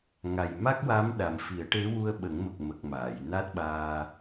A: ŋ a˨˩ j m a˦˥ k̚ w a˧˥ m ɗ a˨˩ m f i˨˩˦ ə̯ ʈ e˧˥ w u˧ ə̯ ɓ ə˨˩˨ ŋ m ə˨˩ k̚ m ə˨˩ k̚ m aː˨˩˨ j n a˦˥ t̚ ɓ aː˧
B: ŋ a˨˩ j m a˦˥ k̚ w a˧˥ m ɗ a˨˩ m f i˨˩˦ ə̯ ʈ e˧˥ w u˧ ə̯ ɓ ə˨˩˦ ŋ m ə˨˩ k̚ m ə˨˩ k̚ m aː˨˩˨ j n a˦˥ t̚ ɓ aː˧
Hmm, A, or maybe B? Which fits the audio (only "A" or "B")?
B